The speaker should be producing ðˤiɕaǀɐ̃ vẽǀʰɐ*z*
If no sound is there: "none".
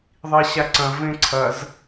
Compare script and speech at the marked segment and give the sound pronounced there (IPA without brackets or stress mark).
z